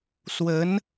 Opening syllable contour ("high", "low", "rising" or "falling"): rising